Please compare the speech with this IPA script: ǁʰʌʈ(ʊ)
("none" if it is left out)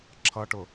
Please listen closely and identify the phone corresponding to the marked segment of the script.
ʊ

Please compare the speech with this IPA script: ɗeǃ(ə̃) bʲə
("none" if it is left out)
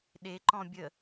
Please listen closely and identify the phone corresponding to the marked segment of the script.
ɔ̃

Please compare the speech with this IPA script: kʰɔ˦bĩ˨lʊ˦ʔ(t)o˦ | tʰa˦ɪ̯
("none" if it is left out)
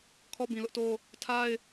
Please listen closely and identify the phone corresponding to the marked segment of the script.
t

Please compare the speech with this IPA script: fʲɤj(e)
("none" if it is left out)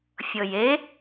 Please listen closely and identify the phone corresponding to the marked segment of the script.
e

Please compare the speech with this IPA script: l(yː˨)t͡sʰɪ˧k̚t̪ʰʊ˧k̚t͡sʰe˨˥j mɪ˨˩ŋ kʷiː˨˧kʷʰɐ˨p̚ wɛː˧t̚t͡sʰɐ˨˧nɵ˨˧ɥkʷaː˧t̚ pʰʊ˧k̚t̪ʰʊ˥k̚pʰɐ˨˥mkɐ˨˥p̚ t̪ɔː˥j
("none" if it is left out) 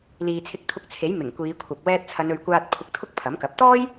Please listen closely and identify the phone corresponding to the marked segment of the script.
iː˨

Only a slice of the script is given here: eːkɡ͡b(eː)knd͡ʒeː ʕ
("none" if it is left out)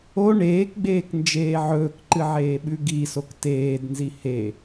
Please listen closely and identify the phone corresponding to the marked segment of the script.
eː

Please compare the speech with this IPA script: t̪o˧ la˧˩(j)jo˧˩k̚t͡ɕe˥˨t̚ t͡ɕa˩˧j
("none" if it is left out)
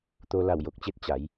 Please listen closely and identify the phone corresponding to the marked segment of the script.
w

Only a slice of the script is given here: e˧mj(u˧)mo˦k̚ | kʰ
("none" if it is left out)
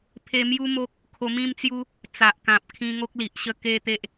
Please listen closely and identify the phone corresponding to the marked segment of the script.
u˦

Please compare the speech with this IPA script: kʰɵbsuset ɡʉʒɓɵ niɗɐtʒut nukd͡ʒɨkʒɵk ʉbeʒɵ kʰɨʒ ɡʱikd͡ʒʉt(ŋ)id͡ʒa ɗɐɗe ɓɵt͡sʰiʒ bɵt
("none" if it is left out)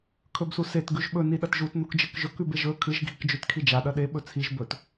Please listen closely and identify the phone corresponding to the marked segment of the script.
kʰ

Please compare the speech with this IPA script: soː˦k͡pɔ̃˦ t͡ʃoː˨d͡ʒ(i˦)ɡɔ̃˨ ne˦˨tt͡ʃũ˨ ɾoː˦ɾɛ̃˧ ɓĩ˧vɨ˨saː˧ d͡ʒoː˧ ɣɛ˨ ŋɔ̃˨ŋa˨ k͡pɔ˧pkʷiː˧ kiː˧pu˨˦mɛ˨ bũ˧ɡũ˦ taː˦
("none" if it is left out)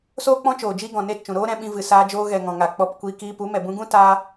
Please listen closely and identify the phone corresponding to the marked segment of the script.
i˦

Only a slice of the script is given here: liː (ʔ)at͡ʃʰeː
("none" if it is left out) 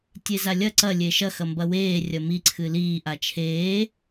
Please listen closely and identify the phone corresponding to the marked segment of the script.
ʔ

